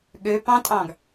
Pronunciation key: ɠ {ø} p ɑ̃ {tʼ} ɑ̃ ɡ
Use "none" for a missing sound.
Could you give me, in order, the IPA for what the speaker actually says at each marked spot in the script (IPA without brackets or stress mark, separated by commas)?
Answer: ø, tʼ